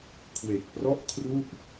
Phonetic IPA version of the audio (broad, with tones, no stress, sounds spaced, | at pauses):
kʰ w e˨˩ k̚ p r ɔ˥˩ ʔ kʰ r u˥˩ ʔ